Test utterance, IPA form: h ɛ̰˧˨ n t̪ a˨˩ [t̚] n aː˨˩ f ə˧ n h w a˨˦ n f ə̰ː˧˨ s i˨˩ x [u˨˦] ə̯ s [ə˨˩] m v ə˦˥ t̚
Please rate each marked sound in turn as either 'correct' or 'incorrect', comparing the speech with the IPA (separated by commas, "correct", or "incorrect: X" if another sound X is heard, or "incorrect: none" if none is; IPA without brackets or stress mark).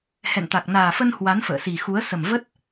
incorrect: k̚, correct, correct